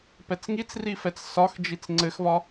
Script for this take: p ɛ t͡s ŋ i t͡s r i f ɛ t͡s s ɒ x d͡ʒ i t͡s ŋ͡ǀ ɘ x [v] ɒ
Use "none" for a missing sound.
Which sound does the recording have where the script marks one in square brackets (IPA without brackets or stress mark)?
v